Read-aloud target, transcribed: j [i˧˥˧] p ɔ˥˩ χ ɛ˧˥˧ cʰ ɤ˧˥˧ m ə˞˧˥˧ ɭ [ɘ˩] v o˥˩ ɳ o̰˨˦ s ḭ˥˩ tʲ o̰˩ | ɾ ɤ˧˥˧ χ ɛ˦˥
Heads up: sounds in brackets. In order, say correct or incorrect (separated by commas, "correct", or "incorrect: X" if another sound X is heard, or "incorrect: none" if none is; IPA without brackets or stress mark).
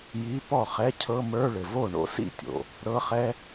correct, correct